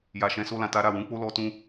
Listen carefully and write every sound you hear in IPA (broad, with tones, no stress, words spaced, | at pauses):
ja˨ʃɛ̃˨˦so˧ lã˨ta˧ ɾa˨ wũ˨˦k͡po˦lɔ˧ tũ˧